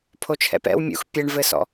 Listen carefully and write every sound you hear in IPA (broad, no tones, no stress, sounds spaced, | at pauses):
pʰ o t͡ʃʰ ɛ̰ p ɛ̰ w mʲ ṵ x pʲ ɛ ɳ v ɘ s ɔ̰